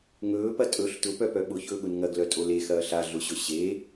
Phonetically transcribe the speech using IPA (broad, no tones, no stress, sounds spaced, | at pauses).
ŋ ɵː p ɐ tʼ ɵ ɬ t ʊ p œ p œ ɓ ʊ ç ɵː ɠ ʊ n ŋ ɐ ɡ l œ tʼ o l e x ɐː ɬ a ɮ ʊ ɕ ɵ ɕ e